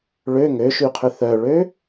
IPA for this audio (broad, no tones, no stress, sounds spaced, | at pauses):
ɭ ø ŋ ø ʃ y qʰ ʏ θ œ ɭ ø